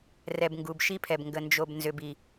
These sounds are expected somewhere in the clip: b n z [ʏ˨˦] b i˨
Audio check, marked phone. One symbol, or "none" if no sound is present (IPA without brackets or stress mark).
ʏ˨